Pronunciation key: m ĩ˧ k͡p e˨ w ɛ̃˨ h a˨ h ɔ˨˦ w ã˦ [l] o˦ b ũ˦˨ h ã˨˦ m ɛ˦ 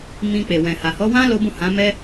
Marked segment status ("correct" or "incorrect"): correct